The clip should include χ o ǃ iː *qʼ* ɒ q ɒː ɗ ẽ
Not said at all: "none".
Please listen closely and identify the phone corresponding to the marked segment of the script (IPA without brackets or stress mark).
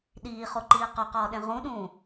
q